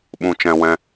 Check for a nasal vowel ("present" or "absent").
present